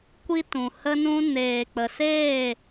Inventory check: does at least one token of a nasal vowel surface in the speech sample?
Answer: yes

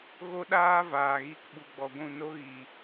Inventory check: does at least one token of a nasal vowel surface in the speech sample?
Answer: yes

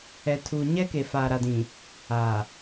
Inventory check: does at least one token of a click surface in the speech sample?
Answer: no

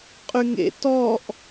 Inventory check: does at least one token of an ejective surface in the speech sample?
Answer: yes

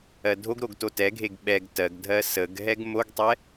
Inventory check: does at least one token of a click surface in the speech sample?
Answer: no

